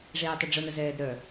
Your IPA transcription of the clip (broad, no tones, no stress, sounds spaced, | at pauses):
ʐ eː tˤ ə ɖ͡ʐ ʊ n ə z ɛː d ɾ œ